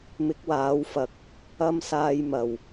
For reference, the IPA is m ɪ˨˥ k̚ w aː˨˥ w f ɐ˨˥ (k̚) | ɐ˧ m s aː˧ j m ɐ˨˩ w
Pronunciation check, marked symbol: correct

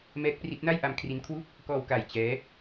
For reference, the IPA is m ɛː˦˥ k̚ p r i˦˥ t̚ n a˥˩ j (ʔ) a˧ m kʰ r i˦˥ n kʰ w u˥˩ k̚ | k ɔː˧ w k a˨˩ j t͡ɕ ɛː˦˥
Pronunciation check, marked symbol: correct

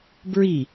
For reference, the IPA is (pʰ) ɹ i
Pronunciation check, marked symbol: incorrect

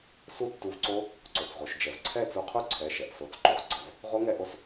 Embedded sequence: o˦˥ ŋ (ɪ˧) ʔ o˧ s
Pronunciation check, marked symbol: incorrect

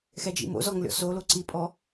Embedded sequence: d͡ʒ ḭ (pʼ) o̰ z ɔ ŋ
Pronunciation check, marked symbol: incorrect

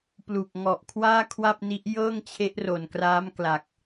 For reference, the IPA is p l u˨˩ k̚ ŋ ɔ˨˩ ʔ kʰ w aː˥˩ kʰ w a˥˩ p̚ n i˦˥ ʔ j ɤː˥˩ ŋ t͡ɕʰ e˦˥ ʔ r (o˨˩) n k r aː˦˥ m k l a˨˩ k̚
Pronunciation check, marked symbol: correct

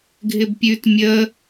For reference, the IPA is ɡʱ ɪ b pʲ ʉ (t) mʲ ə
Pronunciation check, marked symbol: correct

